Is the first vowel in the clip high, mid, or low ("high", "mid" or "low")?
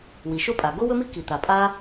high